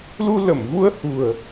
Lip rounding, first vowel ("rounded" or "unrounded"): rounded